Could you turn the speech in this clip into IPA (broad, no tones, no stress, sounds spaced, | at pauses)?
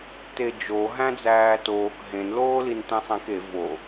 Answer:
t e d͡ʒ o ɦ æ̃ d͡z æː t oː k ɦ ẽ n l oː l i n t ẽ sˤ ẽ k e v o